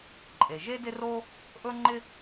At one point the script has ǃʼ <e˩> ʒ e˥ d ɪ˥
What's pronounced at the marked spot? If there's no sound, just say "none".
e˩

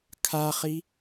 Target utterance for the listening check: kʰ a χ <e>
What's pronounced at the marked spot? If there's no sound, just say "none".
i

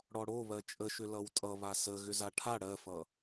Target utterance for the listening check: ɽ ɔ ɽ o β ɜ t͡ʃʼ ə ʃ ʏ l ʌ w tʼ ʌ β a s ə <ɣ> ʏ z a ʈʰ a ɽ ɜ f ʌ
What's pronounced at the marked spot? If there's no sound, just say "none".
ɣ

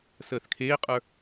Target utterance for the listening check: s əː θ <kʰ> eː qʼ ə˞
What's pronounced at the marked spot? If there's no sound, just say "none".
kʰ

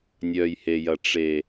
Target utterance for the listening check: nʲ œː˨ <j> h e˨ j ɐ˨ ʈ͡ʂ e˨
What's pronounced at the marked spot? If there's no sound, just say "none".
j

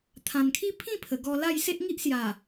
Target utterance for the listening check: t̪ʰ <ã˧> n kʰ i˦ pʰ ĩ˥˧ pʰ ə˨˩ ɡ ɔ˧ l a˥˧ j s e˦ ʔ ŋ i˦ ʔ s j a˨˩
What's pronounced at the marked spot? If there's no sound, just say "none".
ã˨˩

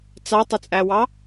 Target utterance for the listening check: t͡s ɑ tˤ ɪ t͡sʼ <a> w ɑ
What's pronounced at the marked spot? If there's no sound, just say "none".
æ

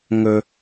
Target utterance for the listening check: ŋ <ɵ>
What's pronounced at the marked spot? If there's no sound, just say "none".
ɵ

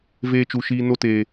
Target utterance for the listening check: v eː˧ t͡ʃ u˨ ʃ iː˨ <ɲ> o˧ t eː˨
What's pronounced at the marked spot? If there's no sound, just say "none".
n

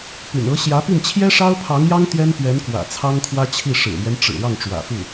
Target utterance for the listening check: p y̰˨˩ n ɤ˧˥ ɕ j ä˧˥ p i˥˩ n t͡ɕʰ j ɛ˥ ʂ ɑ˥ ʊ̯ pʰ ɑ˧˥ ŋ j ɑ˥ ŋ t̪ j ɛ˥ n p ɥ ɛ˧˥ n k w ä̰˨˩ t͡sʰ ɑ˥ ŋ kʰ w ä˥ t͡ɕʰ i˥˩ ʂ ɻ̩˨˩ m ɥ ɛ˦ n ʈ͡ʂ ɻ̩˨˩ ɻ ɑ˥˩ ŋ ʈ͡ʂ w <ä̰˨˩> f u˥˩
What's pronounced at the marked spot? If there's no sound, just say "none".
ä̰˨˩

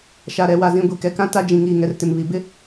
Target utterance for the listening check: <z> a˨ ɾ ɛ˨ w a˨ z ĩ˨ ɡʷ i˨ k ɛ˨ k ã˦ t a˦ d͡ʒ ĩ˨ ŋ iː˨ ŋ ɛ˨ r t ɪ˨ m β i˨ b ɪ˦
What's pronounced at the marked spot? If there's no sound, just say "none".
ʃ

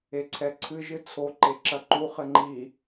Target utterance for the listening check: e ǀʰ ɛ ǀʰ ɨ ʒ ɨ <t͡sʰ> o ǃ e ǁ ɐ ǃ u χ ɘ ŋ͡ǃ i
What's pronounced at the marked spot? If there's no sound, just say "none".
t͡sʰ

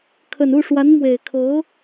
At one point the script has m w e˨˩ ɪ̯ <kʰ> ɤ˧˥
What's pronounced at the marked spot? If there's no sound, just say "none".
kʰ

